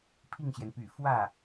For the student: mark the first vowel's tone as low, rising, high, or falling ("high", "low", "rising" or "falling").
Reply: falling